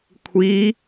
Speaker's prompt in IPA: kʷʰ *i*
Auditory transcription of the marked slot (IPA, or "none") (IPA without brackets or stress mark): iː